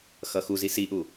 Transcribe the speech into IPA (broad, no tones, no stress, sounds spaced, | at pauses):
x ʌ x u z i s i ʔ u